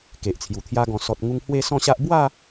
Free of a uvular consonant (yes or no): yes